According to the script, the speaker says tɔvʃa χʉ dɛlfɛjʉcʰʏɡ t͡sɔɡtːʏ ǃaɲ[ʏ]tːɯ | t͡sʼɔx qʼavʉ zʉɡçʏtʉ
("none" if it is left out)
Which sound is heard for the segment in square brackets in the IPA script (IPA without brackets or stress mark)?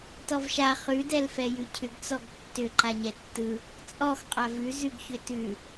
ɛ